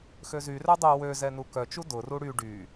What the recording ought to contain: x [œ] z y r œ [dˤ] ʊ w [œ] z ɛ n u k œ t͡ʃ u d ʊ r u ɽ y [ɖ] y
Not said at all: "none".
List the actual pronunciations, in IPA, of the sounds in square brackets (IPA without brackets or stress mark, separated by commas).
ø, dˤ, ø, ɖ